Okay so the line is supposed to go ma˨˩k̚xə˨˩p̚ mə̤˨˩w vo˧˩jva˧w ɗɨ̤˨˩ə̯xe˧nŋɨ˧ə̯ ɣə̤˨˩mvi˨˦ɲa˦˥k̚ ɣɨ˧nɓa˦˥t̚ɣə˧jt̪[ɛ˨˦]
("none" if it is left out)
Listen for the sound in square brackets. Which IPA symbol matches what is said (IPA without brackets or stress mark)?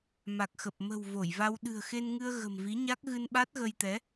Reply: ɛ˨˦